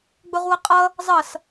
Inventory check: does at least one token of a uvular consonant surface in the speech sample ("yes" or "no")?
yes